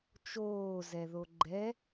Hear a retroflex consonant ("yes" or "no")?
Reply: no